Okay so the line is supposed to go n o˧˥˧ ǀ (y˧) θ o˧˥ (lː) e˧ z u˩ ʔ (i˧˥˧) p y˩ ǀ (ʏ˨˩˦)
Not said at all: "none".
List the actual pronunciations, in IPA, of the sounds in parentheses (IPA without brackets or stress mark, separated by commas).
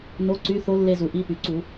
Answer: y˧˥˧, lː, i˧˥˧, u˨˩˦